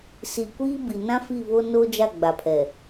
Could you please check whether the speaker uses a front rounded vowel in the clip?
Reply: no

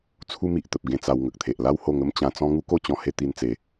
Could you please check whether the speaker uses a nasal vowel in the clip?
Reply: yes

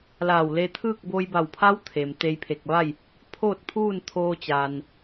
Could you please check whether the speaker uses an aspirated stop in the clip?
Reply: yes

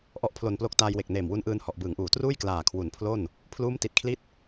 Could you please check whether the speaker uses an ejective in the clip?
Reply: no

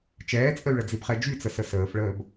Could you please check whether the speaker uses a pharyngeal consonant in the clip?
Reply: no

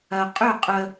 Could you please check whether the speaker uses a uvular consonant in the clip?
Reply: yes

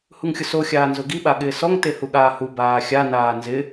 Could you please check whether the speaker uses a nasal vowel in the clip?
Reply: no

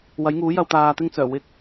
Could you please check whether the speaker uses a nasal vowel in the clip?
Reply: no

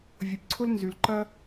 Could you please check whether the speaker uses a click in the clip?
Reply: yes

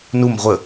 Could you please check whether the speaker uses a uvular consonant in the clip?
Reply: yes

